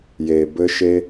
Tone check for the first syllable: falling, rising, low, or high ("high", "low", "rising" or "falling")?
low